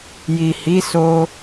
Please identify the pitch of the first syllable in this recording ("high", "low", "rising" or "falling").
low